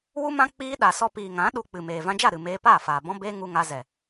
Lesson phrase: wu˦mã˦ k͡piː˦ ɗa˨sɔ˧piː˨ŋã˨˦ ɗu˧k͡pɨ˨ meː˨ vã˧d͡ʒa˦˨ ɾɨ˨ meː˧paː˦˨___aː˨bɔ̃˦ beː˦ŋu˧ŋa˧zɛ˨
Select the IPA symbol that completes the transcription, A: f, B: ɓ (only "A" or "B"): A